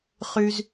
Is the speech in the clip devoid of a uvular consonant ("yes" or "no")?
no